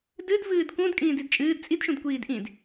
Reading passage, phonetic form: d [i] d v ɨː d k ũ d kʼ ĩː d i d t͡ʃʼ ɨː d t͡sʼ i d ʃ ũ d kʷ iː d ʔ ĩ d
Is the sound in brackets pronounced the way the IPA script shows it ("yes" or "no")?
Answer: no